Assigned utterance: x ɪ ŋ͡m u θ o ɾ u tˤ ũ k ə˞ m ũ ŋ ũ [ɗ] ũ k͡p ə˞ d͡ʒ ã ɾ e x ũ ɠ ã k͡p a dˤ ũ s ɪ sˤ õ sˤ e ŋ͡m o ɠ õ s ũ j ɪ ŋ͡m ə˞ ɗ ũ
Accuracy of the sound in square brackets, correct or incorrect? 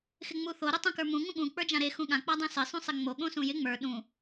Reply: incorrect: ɠ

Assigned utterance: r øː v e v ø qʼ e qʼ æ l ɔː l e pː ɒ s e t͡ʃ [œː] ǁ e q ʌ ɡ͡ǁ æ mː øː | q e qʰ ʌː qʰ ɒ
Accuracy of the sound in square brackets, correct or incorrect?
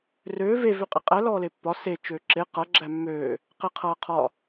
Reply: incorrect: øː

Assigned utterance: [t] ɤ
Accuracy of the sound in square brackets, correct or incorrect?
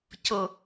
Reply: incorrect: c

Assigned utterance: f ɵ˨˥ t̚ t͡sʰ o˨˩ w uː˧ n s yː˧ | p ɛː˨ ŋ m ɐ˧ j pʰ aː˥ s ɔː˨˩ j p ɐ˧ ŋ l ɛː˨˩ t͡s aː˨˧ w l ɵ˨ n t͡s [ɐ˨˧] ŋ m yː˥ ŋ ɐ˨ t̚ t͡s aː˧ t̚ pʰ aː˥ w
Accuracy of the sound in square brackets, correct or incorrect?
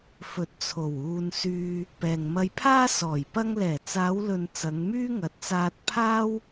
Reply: correct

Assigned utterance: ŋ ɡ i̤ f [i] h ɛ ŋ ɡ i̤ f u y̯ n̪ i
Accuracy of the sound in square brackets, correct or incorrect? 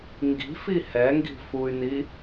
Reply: correct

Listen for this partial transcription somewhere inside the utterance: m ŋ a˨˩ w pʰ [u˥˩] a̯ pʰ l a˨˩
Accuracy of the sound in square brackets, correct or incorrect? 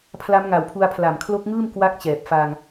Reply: incorrect: u˧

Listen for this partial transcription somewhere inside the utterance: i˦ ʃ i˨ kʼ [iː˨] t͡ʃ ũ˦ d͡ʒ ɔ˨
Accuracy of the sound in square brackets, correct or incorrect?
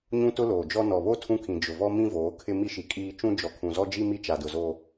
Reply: incorrect: iː˦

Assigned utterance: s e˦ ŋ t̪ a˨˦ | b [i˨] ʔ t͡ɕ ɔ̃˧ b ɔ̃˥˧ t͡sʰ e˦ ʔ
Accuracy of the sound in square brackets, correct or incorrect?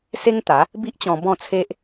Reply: incorrect: i˦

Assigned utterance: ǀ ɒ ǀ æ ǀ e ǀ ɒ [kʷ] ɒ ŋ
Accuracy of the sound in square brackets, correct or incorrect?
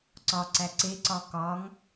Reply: incorrect: k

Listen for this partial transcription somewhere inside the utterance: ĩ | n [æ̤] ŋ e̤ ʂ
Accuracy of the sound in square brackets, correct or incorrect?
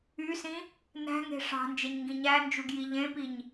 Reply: correct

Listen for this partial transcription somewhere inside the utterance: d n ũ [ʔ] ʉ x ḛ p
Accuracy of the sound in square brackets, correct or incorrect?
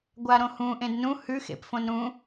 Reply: incorrect: h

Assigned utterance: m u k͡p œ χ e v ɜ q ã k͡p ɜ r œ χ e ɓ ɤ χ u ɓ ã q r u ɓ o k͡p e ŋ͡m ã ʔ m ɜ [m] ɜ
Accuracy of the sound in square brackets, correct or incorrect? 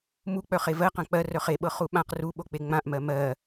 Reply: correct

